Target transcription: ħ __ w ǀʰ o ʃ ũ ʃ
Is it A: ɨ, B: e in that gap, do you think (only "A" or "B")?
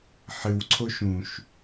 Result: A